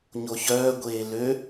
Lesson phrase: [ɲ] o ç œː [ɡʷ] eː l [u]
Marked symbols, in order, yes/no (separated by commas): yes, yes, no